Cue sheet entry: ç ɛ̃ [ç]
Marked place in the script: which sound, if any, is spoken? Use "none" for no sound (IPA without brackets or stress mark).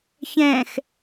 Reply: x